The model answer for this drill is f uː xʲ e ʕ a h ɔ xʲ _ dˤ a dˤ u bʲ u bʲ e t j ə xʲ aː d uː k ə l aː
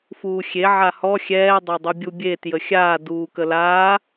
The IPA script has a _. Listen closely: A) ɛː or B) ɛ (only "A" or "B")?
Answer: A